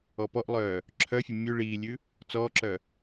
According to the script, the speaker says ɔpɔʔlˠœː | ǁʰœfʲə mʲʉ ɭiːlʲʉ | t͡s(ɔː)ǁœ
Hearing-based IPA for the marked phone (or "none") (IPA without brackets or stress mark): ɔː